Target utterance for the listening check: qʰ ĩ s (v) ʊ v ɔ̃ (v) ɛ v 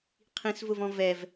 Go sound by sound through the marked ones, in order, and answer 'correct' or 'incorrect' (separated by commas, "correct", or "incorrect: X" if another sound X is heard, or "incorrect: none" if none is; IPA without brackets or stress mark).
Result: correct, correct